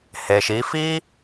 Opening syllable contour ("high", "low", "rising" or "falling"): low